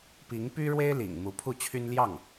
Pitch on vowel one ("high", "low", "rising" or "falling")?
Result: rising